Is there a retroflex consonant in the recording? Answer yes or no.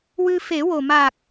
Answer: no